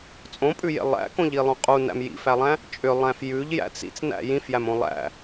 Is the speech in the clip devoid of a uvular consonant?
no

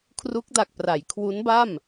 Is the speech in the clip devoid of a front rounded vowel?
yes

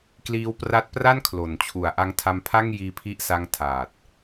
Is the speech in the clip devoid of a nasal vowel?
yes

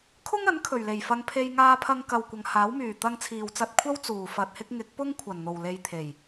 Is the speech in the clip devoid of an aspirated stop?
no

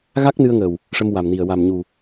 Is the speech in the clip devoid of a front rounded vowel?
yes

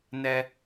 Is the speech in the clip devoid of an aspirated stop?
yes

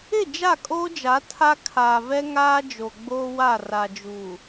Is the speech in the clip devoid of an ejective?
no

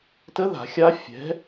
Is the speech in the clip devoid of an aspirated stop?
yes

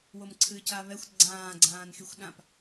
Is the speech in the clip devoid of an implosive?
no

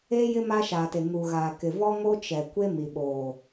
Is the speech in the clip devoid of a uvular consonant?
yes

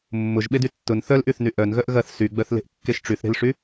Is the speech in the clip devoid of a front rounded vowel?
no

